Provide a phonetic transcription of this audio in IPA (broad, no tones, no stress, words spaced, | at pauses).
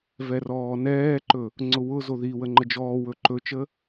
vɛrɔːnɛːǃɵ | ŋ͡ǀʊwʊzo ði wəŋ͡ǃəd͡ʒɔːwɵ ǃɵt͡ʃə